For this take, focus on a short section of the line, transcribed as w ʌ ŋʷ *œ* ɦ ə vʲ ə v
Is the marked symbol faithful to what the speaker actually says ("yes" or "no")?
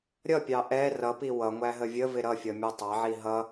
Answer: no